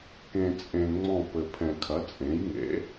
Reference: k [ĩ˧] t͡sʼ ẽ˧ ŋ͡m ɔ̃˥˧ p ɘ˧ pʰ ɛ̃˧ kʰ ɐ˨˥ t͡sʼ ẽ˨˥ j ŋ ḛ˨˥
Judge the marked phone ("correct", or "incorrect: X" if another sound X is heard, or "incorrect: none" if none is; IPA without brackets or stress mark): incorrect: ẽ˧